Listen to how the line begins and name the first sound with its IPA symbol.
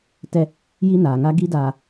t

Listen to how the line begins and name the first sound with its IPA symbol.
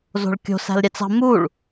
z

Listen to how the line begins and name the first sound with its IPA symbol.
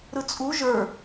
ɾ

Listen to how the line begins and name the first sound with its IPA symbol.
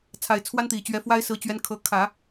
t͡sʰ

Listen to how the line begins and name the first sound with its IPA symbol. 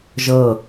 ʒ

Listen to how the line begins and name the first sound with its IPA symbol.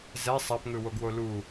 z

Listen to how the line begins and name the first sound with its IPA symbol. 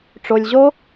ʈ͡ʂ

